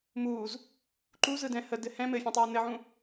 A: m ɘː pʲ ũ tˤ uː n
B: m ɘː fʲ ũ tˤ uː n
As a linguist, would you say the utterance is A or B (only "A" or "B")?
B